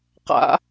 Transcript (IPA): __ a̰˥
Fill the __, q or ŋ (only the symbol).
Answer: q